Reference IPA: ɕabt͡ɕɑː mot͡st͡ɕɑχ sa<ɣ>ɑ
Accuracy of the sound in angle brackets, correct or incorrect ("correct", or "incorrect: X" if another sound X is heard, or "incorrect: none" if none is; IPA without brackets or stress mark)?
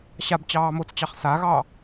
correct